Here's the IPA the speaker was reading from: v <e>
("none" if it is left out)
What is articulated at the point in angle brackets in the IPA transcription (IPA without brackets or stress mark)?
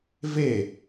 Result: e